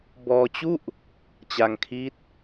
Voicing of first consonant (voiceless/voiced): voiced